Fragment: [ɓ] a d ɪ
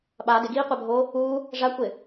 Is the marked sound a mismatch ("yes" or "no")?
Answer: no